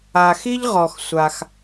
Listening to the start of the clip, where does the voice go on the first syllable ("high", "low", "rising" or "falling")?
low